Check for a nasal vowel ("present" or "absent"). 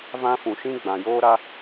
present